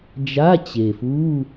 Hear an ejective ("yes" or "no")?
no